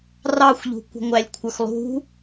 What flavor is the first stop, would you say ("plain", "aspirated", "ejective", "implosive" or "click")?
plain